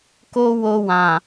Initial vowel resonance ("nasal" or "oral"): oral